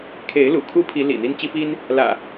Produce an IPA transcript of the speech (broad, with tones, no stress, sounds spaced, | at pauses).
kʰ e˨˦ ɪ̯ l ṵ˨˩ kʰ u˦ pʰ i˨˦ l ḭ˨˩ n̪ i˦ n t͡ɕ i˦ p i˦ n | l ä̰˨˩